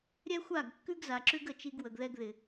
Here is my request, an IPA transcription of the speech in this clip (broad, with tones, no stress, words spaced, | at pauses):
ɾʲɛ˦xʷa˦˨ɡ kːʉ˦ɡza˨ǁʉ˦ɡ ə˦˨t͡ʃi˦ɡ wə˨ɡðɛ˦ɡ ðɪ˨